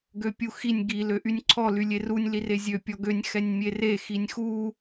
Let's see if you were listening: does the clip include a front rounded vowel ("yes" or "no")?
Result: yes